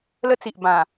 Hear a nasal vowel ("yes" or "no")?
yes